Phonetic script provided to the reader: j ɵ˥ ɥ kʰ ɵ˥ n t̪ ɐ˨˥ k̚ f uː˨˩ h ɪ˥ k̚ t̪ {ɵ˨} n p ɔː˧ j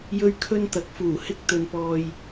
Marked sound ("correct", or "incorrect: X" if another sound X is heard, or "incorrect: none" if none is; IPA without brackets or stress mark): incorrect: ɵ˨˧